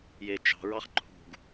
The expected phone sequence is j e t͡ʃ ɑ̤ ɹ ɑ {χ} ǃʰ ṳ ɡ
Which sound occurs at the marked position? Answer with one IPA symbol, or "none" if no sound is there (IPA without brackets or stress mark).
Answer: χ